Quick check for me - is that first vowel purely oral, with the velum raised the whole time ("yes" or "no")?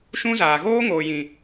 no